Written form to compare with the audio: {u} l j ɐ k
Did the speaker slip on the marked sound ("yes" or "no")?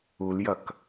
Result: no